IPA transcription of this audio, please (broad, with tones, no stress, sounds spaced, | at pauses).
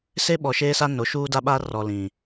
s e˦ ɓ ɔ˨ ʃ eː˦ s a˦ n o˨˦ ʃ uː˦ d a˦ ɓ a˦ r ɔ˨ l ĩ˨